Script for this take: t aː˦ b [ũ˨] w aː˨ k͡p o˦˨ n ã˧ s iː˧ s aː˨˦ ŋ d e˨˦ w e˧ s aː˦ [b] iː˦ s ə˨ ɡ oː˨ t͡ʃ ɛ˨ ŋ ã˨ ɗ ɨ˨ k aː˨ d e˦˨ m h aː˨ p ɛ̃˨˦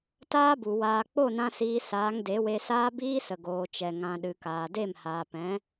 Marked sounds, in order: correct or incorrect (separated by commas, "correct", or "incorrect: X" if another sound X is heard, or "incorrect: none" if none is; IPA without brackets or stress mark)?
incorrect: u˨, correct